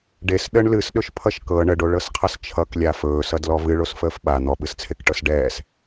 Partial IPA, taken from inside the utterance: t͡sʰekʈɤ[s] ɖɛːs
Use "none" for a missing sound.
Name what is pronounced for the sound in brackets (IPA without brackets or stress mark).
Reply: s